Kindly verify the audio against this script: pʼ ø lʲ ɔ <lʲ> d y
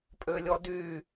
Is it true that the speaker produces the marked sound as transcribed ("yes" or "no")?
no